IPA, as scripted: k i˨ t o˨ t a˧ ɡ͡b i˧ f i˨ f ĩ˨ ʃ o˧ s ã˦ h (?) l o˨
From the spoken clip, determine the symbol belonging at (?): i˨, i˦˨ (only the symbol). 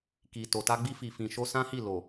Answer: i˦˨